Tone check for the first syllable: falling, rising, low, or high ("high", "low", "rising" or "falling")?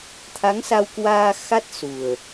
rising